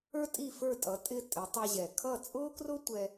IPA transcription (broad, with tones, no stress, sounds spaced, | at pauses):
ə˞˥ tʼ i˥˩ f ə˞˥˩ tʼ ʌ˩˥ tʼ ɪ˧ tʼ ɪ˩˥ tˤ ʌ˧ ʑ ɛ˩ kʰ ʌ˥˩ t͡sʼ ʊː˥ k r ʊ˥ tʷ ɛ˧